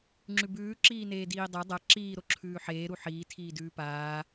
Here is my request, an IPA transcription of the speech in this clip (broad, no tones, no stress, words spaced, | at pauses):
ŋ͡ǁʉbʉː ǁiːneːdiːdˤa dˤa ǁiː ɾoǁʰʉːħeː ɾuħiː tʰiːdʉːpaː